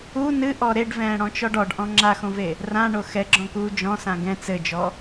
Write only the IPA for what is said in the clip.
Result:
u nɨʔɔ ɾeɖvɛ̃ːɽɔ̃t͡ʃɔɖ ɔɖʔɔ̃ ŋ͡ǁaxõve | rãɳo xɛɡ͡ǁɔ̃kuː d͡ʒɔ̃sã ɡɛ̃ t͡sɘd͡ʒɔ

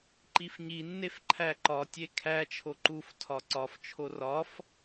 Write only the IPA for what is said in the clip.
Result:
ǃifɲinːef ǃʰæǃɒtʲe kʰæt͡ʃʰo ǃuftʰɒ ǀɒft͡ʃʰo rɒf

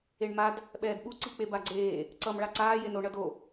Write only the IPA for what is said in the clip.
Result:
eɳmad | ɓɛːdɓu ǀik͡pebaɡ͡ǀeː | ǀʌm ɭaǀaː jeno ɳʌdo

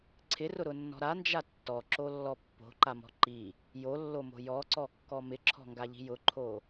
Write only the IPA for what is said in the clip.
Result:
ǀʰɪrʊɾʊnːɔ̤ ɾand͡ʒa tːɔǁolːɔ pːo̤ǃamɔ̤ ǃi | jolːomo̤ jɔǀɔkːɔ mɪǁʰɔ̤ŋɡaʎi̤ jʊǃʰo

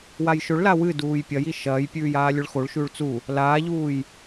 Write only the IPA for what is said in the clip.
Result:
wajʃɵɭla wɨduːj pʲɐji ʃɐːjpʲʉːj aːlʲɵɭxoɭʃʉːɭ t͡su | laːʎuːj

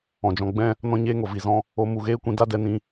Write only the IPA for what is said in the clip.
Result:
ɔ̃˨d͡ʒɔ̃˧ɡ͡bɛ̃˦ | nɔ̃˦ɲeː˦ŋo˨ vi˨zɔ̃˧ | o˧ mu˨ɣeː˦kʷĩ˧ da˦dɛ˧nĩ˧

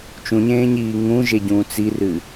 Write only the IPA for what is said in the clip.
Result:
t͡ʃũɲẽːɲiː ŋũʒeɟũːt͡s irɨ

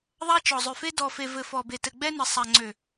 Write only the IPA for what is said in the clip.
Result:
ðˤa˦t͡ʃɔ˨zˤø˨fe˦ dɔ˨fe˨vɘ˨ fɔ˨be˨ tɘ˨ɡ͡bɛ˦nɘ˨sˤa˨ ŋ͡ǀø˨

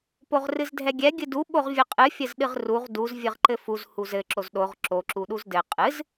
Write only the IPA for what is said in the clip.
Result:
poʁrɨzdʱɛɡʲɛ ɡʲɨdu ɓoʁvʲɘqʼɨ fʲɘzɗɨʁruʁ duz vʲɨʁǃɘfuz huzɘ ǁozɗoʁ ǁo ǁuɗuzdɘ qʼɨz

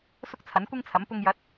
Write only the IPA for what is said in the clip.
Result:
sʊ˥k̚t͡sʰɐ˨˥nkʷɪ˥ŋt͡sʰɐ˨˥m pʊ˧ŋjɐ˨˥t̚

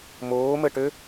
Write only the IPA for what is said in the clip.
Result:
moːməʈø

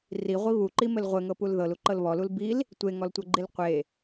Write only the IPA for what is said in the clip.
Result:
riʁʷi βuǃimɘl ʁʷɘŋɤpul ðɤluǃɤl βɔlul bil | tʷeŋɔltʷɤɡ͡ǃil qʷe

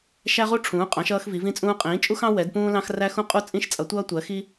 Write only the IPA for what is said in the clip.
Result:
ʃæ˥ʁu˥ʈ͡ʂʰũː˩˥qʼɑ̃˩˥ʃ ʌː˥xvi˩˥vĩ˥t͡sʼũː˥ qʼĩː˩˥t͡ʃʼu˥xɑ̃˥ wɛ˩˥dpũː˥lɑ̃˥x ræ˥xũ˥qʼu˥ t͡sʼĩ˥ʃt͡sʼʌ˩˥tʷʌː˥ tʷɜ˩˥xi˥

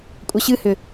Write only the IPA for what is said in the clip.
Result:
kʷʼʌɕɨhʏ

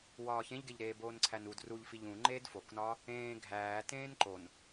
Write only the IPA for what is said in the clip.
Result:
wɒːçẽʎɡeʎɾeː boːnǀʰænud ruʎfiʎ ũ ŋ͡ǃeːdfoknɒː | ẽː ɡʱæːtẽːn ǃon

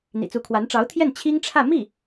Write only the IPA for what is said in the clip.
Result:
n̪ḭ˨˩t͡su˧˥kʰwa˧˥n ʈ͡ʂɑ˧˥ʊ̯t̪ʰjɛ˥˩n t͡ɕʰi˥ŋʈ͡ʂʰä˥˧ mi˥˩

